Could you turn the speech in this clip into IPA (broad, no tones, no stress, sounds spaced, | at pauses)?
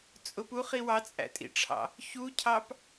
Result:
t͡sʼ ʊ p u χ i w ɑ t͡sʼ æ̰ tʼ ḭ ʈ͡ʂʰ ɑ̰ | ç u cʰ ɑ p